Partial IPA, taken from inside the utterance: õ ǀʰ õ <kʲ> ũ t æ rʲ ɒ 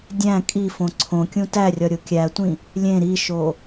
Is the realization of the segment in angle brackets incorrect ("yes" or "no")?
no